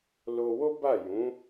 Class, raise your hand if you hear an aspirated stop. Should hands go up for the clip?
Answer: no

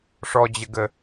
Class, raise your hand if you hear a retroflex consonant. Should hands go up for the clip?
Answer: yes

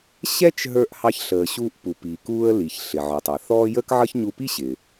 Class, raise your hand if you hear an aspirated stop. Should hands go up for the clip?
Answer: no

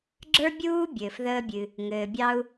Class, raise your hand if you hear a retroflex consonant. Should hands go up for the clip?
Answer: no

